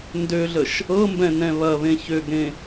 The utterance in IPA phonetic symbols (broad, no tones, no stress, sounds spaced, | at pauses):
n d ø ɮ ə ʃ | ɤ m b ɛ̃ n ɛ̃ β ɐ β ẽ ç ø ɡ ɾ ẽ